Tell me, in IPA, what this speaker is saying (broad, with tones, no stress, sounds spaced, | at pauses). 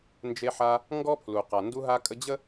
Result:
n d͡ʒ e˧ ħ a˧ | ŋ ɡ ɔ˥ pʰ l u˩ q a˩ n d u˧ ɦ a˧ kʼ ə˧ d͡ʑ ə˥